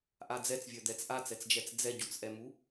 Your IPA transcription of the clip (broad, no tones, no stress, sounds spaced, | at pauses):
ʔ a d͡z ɛ t͡s vʲ œ d̪ ɛ t͡s ʔ a t͡s ɛ t͡s d͡ʒ ɛ t͡s d͡z ɛ ɟ u t͡s ʔ ɛ m u